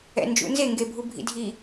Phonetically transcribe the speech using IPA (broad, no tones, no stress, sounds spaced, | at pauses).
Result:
ɛ̰ n d͡ʒ ṵ n z e ŋ ɡ e bʱ u bʱ ḭ dʱ i